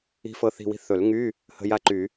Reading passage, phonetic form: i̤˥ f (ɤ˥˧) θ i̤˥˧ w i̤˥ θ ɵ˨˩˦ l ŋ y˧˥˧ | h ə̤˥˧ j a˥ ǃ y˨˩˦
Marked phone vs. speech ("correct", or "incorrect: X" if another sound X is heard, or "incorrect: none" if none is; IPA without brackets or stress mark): correct